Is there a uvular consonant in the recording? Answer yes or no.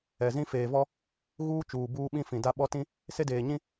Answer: no